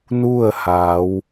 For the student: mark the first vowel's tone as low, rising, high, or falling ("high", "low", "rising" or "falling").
falling